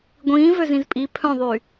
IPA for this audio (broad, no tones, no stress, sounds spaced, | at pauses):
ɡʷ ĩː v ø z ĩ z pʼ i pʰ œ̃ ðˤ y